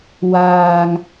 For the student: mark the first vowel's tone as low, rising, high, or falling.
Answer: high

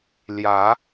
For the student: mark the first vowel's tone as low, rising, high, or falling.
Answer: rising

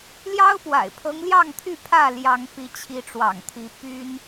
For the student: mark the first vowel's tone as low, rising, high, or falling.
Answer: high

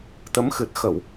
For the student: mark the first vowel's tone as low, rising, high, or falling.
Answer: rising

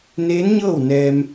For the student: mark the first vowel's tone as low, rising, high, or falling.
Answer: rising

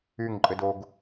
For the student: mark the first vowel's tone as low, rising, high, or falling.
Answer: falling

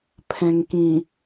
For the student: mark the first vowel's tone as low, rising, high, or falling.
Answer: low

